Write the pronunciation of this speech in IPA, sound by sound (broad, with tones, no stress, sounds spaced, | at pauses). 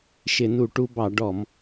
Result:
ʃ ɪ˧˩˧ n u˧˩˧ ʈ u˧ b ɑ˧˩˧ ɖ ɔ˧˩˧ m